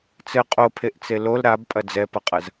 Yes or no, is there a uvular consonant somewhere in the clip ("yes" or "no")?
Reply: yes